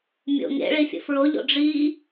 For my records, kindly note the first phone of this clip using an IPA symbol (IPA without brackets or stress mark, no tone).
mʲ